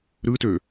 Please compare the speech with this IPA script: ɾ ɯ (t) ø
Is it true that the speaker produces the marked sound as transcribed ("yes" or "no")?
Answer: yes